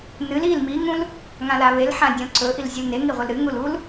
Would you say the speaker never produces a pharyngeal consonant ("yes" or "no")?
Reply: no